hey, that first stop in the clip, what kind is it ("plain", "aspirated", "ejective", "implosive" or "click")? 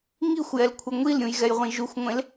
aspirated